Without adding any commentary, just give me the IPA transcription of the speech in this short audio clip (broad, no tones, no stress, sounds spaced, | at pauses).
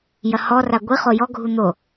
j ɐ h ɔ r a ɡʷ i χ o j ɔ ɡʱ u n̪ o